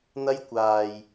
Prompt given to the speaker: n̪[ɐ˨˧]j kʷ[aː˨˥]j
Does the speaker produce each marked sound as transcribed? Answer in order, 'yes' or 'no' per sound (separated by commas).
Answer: no, no